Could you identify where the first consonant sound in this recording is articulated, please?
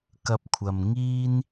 velar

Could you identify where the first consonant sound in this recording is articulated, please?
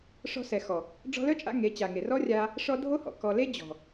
retroflex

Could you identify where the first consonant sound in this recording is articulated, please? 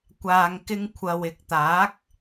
velar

